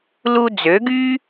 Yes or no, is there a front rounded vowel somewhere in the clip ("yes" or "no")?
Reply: yes